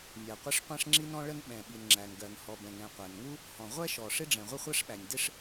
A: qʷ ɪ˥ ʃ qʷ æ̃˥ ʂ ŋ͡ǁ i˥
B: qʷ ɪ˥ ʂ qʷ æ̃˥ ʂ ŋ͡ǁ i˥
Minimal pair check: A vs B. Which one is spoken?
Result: B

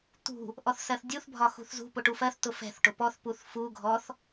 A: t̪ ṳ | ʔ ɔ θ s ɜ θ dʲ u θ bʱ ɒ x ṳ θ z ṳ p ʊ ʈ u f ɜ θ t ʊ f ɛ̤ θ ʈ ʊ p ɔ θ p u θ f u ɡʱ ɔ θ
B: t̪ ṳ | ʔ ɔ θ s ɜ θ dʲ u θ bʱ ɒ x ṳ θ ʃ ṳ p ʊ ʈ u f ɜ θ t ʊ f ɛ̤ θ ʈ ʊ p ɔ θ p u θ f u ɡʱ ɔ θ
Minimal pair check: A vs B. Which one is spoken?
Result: A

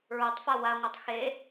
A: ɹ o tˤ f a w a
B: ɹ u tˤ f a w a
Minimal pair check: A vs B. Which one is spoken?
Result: A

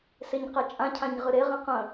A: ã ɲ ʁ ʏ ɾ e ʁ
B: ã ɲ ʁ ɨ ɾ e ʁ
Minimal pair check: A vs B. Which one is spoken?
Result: B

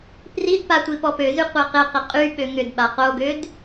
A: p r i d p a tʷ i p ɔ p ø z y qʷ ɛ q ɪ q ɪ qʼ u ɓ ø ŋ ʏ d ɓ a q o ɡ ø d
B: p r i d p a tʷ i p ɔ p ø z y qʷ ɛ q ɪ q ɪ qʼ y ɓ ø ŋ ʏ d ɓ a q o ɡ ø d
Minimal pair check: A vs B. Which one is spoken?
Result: B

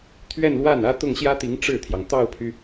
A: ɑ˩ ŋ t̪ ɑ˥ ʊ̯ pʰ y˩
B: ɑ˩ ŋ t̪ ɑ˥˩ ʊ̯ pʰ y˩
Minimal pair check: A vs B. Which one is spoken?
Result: B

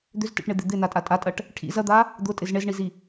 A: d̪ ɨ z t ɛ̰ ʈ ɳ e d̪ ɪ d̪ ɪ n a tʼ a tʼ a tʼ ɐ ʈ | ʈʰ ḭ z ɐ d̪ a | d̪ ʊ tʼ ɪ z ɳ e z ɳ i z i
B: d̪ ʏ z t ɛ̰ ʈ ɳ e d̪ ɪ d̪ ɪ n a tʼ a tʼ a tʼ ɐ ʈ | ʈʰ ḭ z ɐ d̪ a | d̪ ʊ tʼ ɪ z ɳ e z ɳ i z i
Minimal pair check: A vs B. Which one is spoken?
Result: B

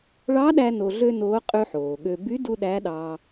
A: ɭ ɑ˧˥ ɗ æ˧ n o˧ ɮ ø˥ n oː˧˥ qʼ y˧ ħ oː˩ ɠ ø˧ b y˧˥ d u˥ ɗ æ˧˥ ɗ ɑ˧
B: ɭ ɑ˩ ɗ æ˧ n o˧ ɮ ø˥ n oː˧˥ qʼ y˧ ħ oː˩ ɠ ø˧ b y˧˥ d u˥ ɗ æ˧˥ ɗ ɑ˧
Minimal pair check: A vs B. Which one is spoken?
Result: A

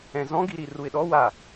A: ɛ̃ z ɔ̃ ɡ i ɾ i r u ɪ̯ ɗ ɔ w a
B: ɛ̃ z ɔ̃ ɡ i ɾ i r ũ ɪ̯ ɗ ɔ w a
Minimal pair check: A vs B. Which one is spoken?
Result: A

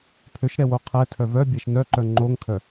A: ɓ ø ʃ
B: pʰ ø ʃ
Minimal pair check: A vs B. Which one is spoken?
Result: B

